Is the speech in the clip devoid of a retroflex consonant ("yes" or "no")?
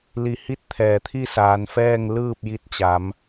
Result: yes